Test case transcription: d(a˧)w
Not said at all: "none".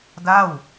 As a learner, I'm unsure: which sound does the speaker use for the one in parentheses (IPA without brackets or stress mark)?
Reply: a˥˩